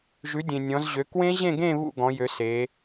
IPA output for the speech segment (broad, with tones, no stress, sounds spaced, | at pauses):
ʒ ʉ˨˦ dʲ ẽ˨ nʲ ɔ̃˨˦ z ʑ ø˨˦ k w ẽ˦˥ ʑ ẽ˥˧ ɡ ẽ˥˧ β ṵ˥˧ ɡ ɔ̃˨˦ j ø˨˦ s e˨˦